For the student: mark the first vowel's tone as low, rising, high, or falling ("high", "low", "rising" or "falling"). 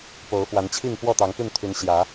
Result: rising